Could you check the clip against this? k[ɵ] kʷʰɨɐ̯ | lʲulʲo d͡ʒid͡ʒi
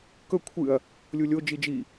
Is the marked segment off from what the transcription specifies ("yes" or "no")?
no